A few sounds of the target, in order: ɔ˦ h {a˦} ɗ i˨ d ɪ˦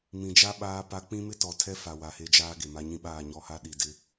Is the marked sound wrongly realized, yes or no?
no